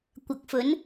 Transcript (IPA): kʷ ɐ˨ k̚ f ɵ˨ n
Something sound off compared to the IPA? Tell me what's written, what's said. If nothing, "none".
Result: ɵ˨ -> ɵ˨˥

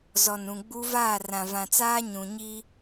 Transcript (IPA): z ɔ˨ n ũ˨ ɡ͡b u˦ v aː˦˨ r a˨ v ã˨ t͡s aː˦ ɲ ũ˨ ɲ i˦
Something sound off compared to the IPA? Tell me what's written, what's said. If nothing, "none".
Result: a˨ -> ã˨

